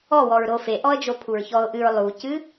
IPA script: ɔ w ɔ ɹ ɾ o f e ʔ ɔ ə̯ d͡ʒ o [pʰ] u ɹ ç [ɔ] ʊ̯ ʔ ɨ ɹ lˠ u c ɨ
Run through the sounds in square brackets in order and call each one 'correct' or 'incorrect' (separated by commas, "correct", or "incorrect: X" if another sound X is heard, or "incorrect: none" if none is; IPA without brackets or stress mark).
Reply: correct, correct